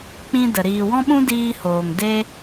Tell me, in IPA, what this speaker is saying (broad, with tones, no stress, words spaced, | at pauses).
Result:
k͡pĩ˦də˨ ɾiː˨wɔ̃˦ɓũ˦ diː˧hoː˨ŋ de˦